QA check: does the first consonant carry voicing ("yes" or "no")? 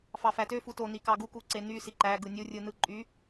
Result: no